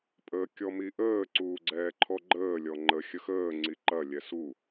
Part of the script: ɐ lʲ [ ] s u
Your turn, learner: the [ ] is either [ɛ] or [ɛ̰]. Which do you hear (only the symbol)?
ɛ